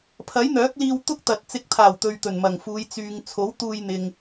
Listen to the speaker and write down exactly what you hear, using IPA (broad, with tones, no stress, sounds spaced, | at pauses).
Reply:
pʰ ɐ˨˥ j n̪ œː˨˥ k̚ l iː˧ w t̪ ʊ˥ k̚ t̪ ɐ˨ t̚ t͡s ɪ˨˥ k̚ t̪ʰ aː˨˩ w t̪ ɵ˨ ɥ t̪ ɵ˨˩ n m ɐ˨˩ ŋ f uː˨˧ j t͡s yː˨ ŋ t͡sʰ o˨˥ w t̪ uː˧ j n̪ ɪ˨ ŋ